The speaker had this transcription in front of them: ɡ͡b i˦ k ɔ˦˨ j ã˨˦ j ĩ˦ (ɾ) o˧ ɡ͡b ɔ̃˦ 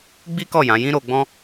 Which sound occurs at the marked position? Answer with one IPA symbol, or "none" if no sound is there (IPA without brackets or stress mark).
ɾ